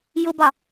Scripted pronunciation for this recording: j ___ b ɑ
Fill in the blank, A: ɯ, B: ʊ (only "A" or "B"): B